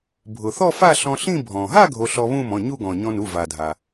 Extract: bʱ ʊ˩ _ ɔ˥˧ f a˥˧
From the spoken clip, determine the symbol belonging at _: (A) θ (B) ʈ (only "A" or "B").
A